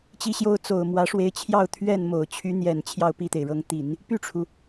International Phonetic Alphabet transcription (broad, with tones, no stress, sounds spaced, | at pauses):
t͡ɕ i˥ ɕ j o˥ ʊ̯ t͡s o˨˩ ʊ̯ m w ä˧˥ ʂ w e˧˥ ɪ̯ t͡ɕʰ j ɑ˥˧ ʊ̯ t̪ʰ ɥ ɛ˥˩ n m o˨˩ ʊ̯ t͡ɕʰ y˧˥ n̪ j ɛ˨˩ n t͡ɕʰ j ɑ˥˧ ʊ̯ p i˥˩ t̪ e˩ ɪ̯ ɻ ɤ˧˥ ŋ t̪ i˨˩˦ n | p y˥˩ ʈ͡ʂʰ u˩